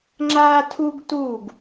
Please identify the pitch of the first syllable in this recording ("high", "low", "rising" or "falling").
high